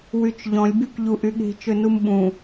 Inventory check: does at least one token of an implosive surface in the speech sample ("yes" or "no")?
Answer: yes